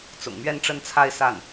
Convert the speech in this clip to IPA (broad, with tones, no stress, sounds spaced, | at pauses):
t͡s ʊ̰˨˩ ŋ m ɥ ɛ˥˧ n ʈ͡ʂ ə˥˧ n t͡sʰ a˥˧ ɪ̯ s a˥˩ n